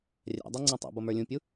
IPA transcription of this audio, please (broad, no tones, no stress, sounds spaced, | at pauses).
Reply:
rʲ æ̰ dˤ æ ŋ͡ǀ ɔ̃ tˤ ɛ̰ b ʌ m ə˞ lʲ ũ pʲ u